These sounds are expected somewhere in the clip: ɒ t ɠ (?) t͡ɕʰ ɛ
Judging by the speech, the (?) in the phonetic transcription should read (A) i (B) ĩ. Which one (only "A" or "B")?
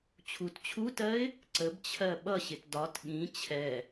B